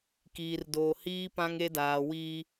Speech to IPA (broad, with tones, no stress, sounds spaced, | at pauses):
k iː˨ r d oː˨ h iː˦ p ã˦ ŋ e˦ d aː˨ w iː˦